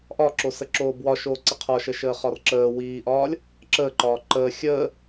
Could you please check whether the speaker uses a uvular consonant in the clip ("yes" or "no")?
yes